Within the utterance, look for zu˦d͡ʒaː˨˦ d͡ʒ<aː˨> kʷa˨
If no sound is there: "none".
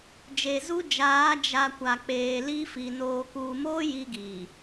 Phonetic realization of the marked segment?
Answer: a˨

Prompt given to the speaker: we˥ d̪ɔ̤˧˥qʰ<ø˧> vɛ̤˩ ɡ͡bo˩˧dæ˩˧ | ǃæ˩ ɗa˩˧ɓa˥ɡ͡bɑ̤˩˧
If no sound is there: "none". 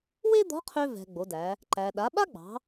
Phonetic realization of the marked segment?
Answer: ø˧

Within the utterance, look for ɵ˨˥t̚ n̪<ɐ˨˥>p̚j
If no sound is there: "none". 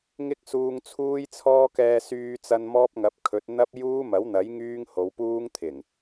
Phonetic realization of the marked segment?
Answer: ɐ˥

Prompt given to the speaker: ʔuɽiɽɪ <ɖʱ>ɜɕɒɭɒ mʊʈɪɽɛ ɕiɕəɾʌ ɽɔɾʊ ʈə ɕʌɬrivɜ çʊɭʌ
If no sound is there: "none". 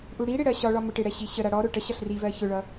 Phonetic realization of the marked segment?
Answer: ɽ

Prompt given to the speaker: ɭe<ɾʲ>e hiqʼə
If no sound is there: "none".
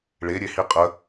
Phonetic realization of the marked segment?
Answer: ɾʲ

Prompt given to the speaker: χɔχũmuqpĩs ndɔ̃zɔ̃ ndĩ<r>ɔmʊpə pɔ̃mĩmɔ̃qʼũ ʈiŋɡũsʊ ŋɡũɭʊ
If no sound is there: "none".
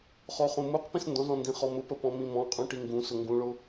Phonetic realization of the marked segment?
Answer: χ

